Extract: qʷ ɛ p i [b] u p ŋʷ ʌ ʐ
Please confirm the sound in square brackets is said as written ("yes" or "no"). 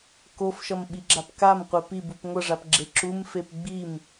yes